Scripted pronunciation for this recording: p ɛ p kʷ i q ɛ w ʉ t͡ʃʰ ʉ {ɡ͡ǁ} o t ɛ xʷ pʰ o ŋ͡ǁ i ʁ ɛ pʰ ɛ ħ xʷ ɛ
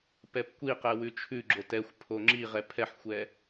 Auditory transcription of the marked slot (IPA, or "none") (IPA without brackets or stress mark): ɡ͡ǁ